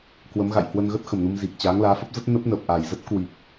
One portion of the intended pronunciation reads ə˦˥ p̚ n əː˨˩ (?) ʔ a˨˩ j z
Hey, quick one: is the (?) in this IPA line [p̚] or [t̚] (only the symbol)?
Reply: p̚